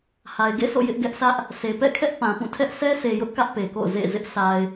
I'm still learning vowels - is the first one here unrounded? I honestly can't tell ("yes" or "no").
yes